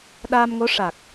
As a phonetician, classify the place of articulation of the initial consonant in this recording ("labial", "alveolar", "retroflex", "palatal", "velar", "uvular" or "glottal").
alveolar